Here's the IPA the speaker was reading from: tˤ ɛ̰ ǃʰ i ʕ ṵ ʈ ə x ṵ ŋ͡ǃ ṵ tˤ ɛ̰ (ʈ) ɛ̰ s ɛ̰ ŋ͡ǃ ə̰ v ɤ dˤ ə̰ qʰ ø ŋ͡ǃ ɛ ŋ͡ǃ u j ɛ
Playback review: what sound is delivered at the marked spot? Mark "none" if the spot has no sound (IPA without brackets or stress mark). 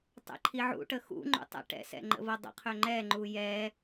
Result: ʈ